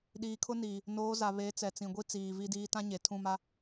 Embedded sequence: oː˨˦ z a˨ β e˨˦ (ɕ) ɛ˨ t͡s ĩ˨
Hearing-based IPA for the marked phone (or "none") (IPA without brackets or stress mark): t͡s